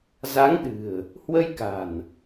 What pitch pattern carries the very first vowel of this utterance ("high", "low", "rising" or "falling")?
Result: rising